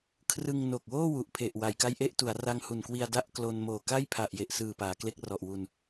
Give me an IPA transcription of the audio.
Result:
kʰ r ɯ˧ ŋ n o˨˩ k̚ w oː˥˩ w u˨˩ ʔ pʰ e˨˩ ʔ w a˩˦ j k a˦˥ j ʔ e˦˥ ʔ t u˩˦ a̯ r a˧ ŋ h u˨˩ n k w i˧ a̯ d a˥˩ ʔ k l o˧ n m oː˨˩ k a˥˩ j pʰ a˨˩ ʔ j e˨˩ ʔ s ɯː˨˩ p aː˩˦ k l e˦˥ k̚ r ɔ˨˩ ʔ w u˧ n

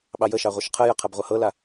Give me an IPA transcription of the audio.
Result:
ɓ ɑ j ə ʃ ɑ ʁʷ ʌ ʃ qʰ ə j ə qʰ ɐ b ʁʷ ʌ h ɤ l a

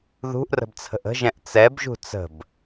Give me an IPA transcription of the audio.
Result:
ð ṳ ʔ r ə̤ b t͡sʰ ə̤ ʔ ə̤ ʒ ɛ̃ ʔ t͡s ɛ b ʒ ṳ t͡s ə̤ b

